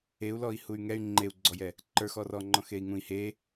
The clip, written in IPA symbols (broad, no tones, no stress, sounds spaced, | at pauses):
e u̯ l ɔ i̯ h u y̯ ŋ ɛ y̯ ŋ͡ǃ e u̯ ɡ͡ǀ ɔ j ɛ | ǃ ə˞ x ɔ r ɔ ŋ͡ǃ ɔ̃ x e i̯ ŋ ũ i̯ h e